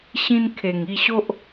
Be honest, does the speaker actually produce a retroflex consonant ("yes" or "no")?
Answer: no